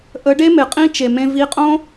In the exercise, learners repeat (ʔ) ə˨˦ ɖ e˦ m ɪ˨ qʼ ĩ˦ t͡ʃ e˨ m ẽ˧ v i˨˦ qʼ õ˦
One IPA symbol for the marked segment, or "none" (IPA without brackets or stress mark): ʔ